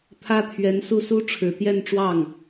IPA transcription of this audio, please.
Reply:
t̪ʰ ä˥ t̪ʰ ɥ ɛ˧˥ n s u˥˩ s u˥ ʈ͡ʂʰ ɻ̩˨˩ t̪ j ɛ˥˧ n ʈ͡ʂ w ɑ˥˩ ŋ

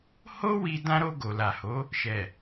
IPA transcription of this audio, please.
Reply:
h o˦ w i˧ d ã˧ ɾ o˧ ɡ o˨ l a˨ h o˨˦ | ʃ ɛ˨

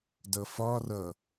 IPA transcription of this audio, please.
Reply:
d ʌ f ɒ r ʌ

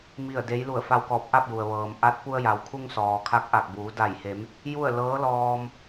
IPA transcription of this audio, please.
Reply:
m i˥˨ ə̯ d e˧˥ j l u˧˩ ə̯ f a˧ w k ɔː˧˩ p̚ ʔ a˥˨ p̚ j u˩ ə̯ ʋ ɤː˩ m ʔ a˧˥ t̚ p u˧ ə̯ j a˩ w kʰ u˧ ŋ s ɔː˩ kʰ a˧˥ k̚ ʔ a˧˩ k̚ b uː˩˧ d a˧˩ j h e˩˧ m | j u˥˨ ə̯ l ɤː˧˥ l ɔː˧ m

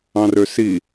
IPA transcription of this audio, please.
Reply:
ɑ̃ r ø s i

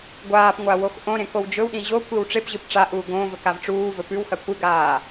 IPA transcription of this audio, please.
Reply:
ɡʷ aː p ŋʷ a w o x ʔ õ ɾ ẽ k o w d͡ʒ ɵ w ɗ ĩ ʑ o kʷ i w ʈ͡ʂ e p ʑ ɨ p ʈ͡ʂ a ʔ uː ɡ õ v ɵ k a v ʈ͡ʂ uː v ɵ p ʉ w x ɐ kʷ ɨ ɡ aː

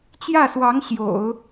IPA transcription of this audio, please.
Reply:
t͡ɕ j ä˥˩ s w ɑ˧˥ ŋ ɕ j o̰˨˩˦ ʊ̯

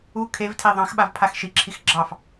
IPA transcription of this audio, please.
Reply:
u kʰ e v tʰ e ðˤ ɑ̃ x ɓ a v pʰ a x ʃ i ǁʰ i x ɡ͡ǁ ɑ f

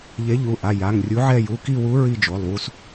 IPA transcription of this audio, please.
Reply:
ʎ e˨˥ ʎ u˩˧˩ ʔ a˩˧˩ j a˩˧˩ ŋ rʲ u˨˥ ʕ ɛ˦˨ j u˩˧˩ k i˦˨ w u˨˥ ɹ i˦˨ d͡ʒ o˩˧˩ lˠ w u˦˨ s

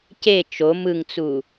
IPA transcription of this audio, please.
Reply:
c e t͡ʃ o m ɯ ŋ t͡s u

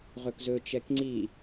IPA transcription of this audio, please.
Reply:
ʁ ɵ k z ɵ t͡ʃ ɛ k ŋ͡ǀ i

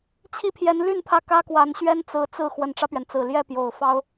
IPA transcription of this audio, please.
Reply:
t͡ɕʰ i˥˩ pʰ j ɛ˧˥ n l y˥˧ n pʰ ä˥˩ k ä˥ k w a˧˥ n ɕ ɥ ɛ˥ n t͡s ɹ̩˧˥ t͡s ɹ̩˥˩ x w ə˨˩ n ʈ͡ʂ ä˦ p ɥ ɛ˩ n t͡s ɹ̩˨˩ l j ɛ˥˩ p j o˨˩ ʊ̯ f ɑ˥ ʊ̯

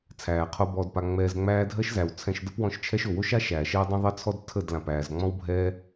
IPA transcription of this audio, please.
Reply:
t͡sʰ æː˨ qʰ o˧ b ɔː˧ d p a˧ ŋ͡m ɛː˧ z ŋ͡m æː˦ dʱ ɜ˦ ʃ z æ˨ w t͡sʰ ɛ̃˧ ʃ d ə˦ p w ɔ̃˧ ʃ t͡ʃʰ ɛ˦ ʃ o˨ w o˦ ʃ a˦ ʃ æː˨ ʃ ɛː˦ dˤ ə̃˦ ðˤ ɜ˦ t͡sʰ ɔ˦ d tʰ ə˦˨ d l ã˨ p æː˨ z ŋ͡m ɔ̃˦ w bʱ ɛː˦

